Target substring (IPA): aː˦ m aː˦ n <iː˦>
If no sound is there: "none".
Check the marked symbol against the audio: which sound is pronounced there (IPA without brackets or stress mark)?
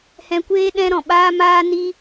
i˦